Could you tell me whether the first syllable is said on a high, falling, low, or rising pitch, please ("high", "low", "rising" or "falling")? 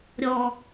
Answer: low